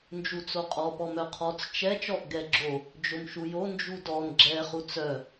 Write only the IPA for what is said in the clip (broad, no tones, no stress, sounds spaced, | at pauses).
n d͡ʒ u t͡s o qʼ ɔ p ɔ m œ qʰ ɔ t͡s t͡ʃ ɛ t͡ʃ ɔ ʔ ɡ ɛ ɡ͡ǁ o | d͡ʒ o m ʃ u j o n d͡ʒ u d ɔ n ɡ͡ǁ ɛ χ u t͡s œ